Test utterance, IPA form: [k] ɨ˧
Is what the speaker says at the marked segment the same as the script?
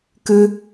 yes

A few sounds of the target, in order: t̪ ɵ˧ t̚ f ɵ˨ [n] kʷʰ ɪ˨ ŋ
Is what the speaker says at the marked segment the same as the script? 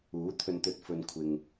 yes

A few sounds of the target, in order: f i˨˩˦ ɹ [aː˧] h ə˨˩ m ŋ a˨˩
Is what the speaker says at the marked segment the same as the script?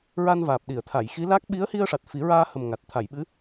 yes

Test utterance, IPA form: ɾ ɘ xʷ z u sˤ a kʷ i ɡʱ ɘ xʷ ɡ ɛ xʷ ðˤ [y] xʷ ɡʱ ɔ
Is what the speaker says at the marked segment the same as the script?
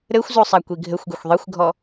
no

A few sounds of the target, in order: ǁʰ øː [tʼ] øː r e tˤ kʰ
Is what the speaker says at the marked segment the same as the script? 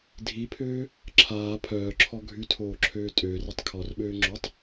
yes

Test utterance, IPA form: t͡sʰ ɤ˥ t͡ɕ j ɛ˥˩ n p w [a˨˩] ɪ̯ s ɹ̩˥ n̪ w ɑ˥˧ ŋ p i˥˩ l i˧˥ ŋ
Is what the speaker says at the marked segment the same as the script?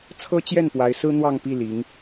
no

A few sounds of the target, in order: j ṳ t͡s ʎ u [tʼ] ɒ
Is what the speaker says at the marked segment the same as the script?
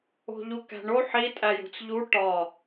no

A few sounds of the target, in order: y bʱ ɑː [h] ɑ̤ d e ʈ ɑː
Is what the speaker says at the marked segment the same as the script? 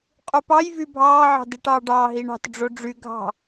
no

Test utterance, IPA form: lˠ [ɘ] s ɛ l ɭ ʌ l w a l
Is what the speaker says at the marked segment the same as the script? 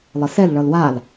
yes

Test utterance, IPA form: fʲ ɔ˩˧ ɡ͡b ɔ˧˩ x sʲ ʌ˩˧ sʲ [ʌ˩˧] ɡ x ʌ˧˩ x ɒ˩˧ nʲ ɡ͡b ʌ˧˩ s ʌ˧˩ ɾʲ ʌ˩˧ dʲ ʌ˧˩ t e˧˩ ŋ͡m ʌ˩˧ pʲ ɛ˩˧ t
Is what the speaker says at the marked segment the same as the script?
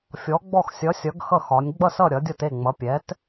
yes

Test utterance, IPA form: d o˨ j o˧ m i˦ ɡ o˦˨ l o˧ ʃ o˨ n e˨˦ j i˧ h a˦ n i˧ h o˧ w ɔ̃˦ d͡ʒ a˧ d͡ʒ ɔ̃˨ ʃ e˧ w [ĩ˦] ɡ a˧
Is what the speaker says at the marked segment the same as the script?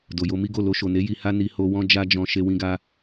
no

